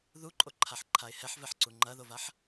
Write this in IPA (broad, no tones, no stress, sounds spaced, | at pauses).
ð u ǃʼ o ǃʰ a ħ ǃʰ a ɪ̯ h ɛ ħ v ɛ ħ ǀ u ŋ͡ǃ ɐ ð o v a ħ